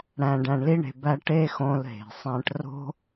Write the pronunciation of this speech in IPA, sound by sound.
ɽ æ̃˨ ɖ æ̃˨ ɳ l i˧ ɳ e̤˨ b æ˧ ʈ e˧ x õ˧ l ɦ e̤˨ sˤ æ̃˧ ʈ r o̤˦

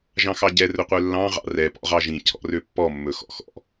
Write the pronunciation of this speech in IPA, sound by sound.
ʒ ɑ̃ x ɑ ɟ ɛ r ɵ qʷ œ lː ɑ̃ ʁ ɑ̰ r ɛ p ɔ̰ ʁ ɑ ʒ ĩ cʰ ɔ̰ r ø pː ɔ mː ɵ x ɔ̰ x ɔ̰

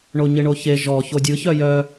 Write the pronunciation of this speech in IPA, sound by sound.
ɳ o ɲ ɪ ɳ o ç e ʒ ɔ ç o dʲ ɯ ç œ j œ

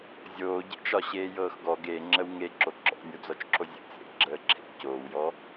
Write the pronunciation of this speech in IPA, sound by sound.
zʲ oː ɟ ḛ t͡ʃ ɒ ɕ eː j ɤː x ɡ ɔ ɡ e ŋ͡ǁ ə w ŋ e ǁ o ǁ ɔ̰ nʲ o d͡z ɔ t͡ʃ ǁʰ o zʲ ə̰ t͡s ḛ ɡ͡ǁ əː ǁʰ ḛ c oː w j ɔ

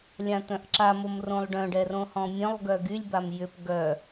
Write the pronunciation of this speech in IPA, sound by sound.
lʲ ã t̪ œ̃ ʔ ǁ a m o m r õ lˠ ɖ œ̃ ɖ ɛ r õ h ɔ̃ mʲ œ̃ lˠ ɡ œ ɡ y lʲ b a m j ʏ p ɡ œ

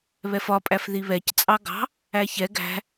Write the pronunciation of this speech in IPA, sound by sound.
β ɛ f ɒ pʼ æ f ð i β ɛ c t͡sʼ ɑ ɡ ɑ̤ | æ ç ɛ ɡ æ̤

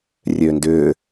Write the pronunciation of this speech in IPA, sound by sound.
rʲ øː n d ʏː

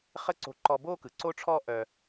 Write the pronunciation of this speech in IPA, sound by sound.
χ ə˥ ǀ o̤˧ ǃ ɔ˧ b o˥ k ɯ˩ ǀ o˧ ʈ͡ʂʰ ɔ˧ ʔ œ˧

